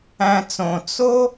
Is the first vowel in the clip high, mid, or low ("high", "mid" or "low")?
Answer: low